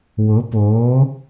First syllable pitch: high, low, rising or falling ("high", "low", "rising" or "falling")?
rising